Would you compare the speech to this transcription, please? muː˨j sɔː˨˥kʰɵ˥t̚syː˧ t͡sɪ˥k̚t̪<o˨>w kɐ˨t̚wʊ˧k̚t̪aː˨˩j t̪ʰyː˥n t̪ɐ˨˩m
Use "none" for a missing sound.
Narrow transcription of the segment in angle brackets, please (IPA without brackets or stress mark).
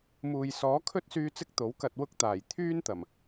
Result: o˨˥